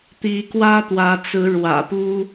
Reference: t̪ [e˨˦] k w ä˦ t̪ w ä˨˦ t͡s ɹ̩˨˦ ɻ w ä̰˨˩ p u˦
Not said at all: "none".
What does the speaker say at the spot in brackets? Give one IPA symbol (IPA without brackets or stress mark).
i˨˦